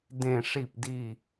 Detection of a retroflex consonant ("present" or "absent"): present